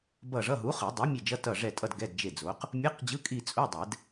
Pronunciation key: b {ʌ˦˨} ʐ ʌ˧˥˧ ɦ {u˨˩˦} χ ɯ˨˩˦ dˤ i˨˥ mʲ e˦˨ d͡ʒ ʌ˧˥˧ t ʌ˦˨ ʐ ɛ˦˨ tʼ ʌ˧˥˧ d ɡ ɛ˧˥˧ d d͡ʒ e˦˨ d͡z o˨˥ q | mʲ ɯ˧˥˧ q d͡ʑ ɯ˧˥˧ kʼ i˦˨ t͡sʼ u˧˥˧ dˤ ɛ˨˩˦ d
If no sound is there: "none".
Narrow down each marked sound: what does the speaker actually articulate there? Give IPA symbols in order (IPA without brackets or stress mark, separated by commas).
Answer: ʌ˦˨, u˨˥